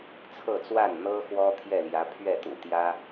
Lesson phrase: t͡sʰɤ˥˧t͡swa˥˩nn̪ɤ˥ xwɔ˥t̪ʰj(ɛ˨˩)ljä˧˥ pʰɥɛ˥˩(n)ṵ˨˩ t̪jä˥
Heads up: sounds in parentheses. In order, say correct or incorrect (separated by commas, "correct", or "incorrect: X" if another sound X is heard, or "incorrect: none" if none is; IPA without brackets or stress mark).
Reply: incorrect: ɛ˥˩, incorrect: t̪